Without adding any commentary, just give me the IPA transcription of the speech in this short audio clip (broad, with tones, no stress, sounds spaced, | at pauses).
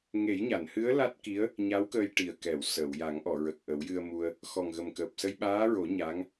ŋ e˨˩˦ j ɲ a˨˩˨ n h ɨ˧˥ ə̯ l a˦˥ t̚ k i˧˥ ə̯ | ɲ a˧˥ w k əː˧ j ʈ i˨˩ ə̯ k ɛ˨˩˨ w s əː˨˩˨ w j a˨˩˦ ŋ ʔ ɔ˨˩˨ ɹ ə˨˩ k̚ ʔ ə˨˩˦ w j ɨ˧ ə̯ m u˧ ə̯ | x ɔ˨˩ ŋ ɣ ə˨˩ m k əː˨˩ p̚ s ə˧ j ɓ aː˧˥ ɹ o˨˩˦ ɲ a˧˥ ŋ